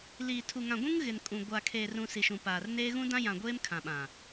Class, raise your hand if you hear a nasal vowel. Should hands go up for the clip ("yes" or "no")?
yes